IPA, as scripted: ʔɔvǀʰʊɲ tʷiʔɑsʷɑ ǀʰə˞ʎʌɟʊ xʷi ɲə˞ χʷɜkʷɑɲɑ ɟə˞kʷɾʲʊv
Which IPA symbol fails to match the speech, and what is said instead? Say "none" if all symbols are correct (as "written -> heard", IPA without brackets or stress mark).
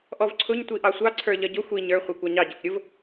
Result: ɜ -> ə˞